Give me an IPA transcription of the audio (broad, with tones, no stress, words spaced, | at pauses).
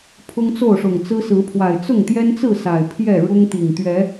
pʰʊ˦ŋt͡so˥˨ʊ̯ʂʊ˨˩ŋt͡sɹ̩˦ sɹ̩˨˦pʰwa˨˩ɪ̯ t͡sʊ˥˨ŋt̪jɛ˦nt͡sɹ̩˥˨ sa˨˩ɪ̯pʰjɛ˥˨ ɻʊ˦ŋt̪i˨˩ŋ t̪ɥɛ˨˦